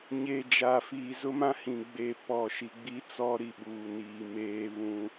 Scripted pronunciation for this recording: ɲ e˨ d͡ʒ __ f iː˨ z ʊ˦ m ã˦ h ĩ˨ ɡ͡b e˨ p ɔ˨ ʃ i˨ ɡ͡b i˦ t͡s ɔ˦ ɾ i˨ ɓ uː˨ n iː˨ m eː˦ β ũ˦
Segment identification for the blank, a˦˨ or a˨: a˨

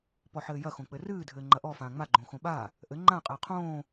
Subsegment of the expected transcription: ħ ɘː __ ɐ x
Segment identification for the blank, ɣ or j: j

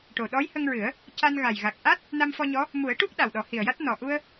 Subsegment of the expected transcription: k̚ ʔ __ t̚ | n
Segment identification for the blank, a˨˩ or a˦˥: a˦˥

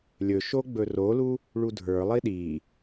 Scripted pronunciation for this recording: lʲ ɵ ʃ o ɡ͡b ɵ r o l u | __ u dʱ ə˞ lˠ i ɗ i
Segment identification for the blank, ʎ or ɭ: ɭ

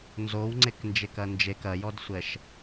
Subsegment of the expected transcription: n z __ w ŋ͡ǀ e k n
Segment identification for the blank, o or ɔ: o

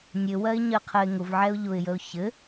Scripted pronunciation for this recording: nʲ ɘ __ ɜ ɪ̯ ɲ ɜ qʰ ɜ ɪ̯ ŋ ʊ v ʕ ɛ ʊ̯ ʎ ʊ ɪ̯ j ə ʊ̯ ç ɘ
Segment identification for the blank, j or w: w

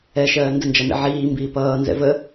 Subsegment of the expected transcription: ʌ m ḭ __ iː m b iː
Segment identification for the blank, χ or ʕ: ʕ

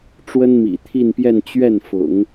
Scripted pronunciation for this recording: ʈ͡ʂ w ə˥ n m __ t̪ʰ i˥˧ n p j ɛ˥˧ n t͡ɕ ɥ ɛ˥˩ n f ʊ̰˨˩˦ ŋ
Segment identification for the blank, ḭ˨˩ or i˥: ḭ˨˩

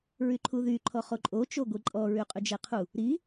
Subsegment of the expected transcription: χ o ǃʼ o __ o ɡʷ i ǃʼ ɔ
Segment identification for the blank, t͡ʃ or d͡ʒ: t͡ʃ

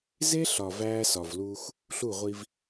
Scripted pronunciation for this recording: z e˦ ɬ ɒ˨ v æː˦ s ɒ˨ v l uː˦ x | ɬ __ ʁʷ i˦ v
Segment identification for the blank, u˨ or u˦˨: u˦˨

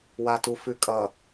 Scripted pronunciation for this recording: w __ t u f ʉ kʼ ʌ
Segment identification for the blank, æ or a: a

